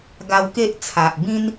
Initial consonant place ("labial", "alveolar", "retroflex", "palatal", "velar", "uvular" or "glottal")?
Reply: velar